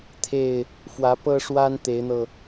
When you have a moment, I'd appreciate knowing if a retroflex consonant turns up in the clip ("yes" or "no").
yes